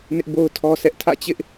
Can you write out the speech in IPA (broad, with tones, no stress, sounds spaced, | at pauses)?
n ɪ˦ ʔ b o˦ ʊ̯ tʰ ɔ˦ sʰ ɛ˦ ʔ tʰ ä̰˦˨ t͡ɕ ɪ˦ ʔ